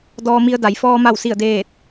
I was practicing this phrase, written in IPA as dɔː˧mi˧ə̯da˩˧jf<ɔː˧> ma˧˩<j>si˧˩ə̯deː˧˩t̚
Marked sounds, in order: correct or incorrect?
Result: correct, incorrect

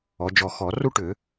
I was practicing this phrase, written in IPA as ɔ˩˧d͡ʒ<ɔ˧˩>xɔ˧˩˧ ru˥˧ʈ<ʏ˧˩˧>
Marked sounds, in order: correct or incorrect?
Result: correct, correct

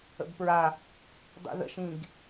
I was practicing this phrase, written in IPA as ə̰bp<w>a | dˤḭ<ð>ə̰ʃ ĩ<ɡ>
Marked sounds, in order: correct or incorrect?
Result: incorrect, correct, correct

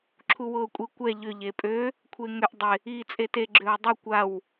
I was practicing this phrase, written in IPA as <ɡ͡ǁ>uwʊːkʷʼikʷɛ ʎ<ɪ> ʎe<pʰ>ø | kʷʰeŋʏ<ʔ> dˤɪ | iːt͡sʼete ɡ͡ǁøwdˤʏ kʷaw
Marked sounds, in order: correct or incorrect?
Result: incorrect, incorrect, incorrect, correct

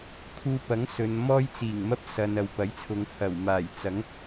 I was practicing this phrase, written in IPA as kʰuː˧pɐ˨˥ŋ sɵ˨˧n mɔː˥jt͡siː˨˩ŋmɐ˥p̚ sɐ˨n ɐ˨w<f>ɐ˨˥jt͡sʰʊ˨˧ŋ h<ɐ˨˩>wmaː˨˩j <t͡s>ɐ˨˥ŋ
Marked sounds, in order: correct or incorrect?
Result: incorrect, correct, correct

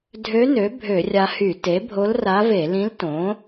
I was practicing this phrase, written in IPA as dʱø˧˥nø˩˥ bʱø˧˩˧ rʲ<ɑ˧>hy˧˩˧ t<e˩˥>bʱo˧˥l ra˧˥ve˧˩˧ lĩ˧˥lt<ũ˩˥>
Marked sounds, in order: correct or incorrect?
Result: incorrect, correct, incorrect

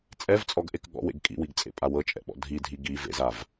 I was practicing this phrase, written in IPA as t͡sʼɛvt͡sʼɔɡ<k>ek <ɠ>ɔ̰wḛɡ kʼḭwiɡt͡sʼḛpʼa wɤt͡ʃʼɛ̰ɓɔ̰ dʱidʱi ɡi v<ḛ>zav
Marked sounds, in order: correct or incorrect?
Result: incorrect, correct, correct

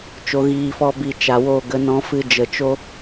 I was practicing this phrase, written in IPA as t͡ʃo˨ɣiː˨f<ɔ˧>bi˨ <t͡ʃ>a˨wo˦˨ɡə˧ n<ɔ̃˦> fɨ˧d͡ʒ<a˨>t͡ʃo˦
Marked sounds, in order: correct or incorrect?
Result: correct, correct, incorrect, incorrect

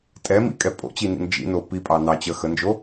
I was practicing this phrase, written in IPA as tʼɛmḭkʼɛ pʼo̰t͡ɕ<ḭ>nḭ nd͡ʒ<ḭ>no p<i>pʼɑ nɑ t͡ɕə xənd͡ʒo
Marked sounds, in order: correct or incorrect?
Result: incorrect, correct, correct

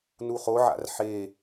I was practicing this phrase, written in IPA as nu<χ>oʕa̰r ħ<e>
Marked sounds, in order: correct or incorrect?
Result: correct, correct

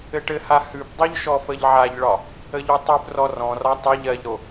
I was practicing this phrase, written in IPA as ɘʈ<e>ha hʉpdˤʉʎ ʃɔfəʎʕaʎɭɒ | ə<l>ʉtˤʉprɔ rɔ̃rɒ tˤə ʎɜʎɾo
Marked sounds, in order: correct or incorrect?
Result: incorrect, incorrect

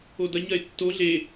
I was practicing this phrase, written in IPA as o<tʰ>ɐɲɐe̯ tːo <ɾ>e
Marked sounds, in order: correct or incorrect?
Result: incorrect, incorrect

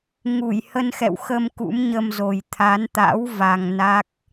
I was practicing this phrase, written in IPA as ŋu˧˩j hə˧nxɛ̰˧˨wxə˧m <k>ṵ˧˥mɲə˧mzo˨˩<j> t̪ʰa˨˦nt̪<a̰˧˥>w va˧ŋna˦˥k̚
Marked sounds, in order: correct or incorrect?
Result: correct, correct, correct

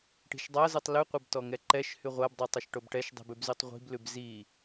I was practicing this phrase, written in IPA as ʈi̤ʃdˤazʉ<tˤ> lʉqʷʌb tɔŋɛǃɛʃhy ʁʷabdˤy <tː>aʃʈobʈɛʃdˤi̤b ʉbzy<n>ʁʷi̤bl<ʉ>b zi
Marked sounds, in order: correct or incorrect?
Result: correct, incorrect, incorrect, correct

